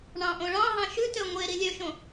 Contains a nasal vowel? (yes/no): yes